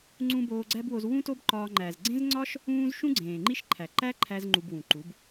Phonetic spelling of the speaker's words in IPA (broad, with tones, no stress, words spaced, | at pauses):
ŋ͡ǀũ˧ boː˧ɡ͡ǀæ˦bwo˧z wũ˦to˦bǃɒː˧ ŋ͡ǃæ˨zɡ͡ǀẽ˦zŋ͡ǀɒ˦ʃ | ũː˦z ʃũ˦ɡ͡ǀẽː˨ŋ͡ǃi˦ʃ ǃʰæ˨ǃæ˦ǃʰæ˧z ŋ͡ǃu˧bwũ˨ǃu˨˦b